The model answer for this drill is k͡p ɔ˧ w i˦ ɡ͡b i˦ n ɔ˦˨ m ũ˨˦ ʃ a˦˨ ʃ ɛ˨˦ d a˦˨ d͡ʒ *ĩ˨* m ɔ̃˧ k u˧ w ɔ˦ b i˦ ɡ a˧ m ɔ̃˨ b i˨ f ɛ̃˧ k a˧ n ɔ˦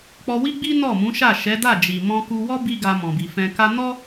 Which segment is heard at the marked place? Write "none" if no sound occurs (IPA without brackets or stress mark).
i˨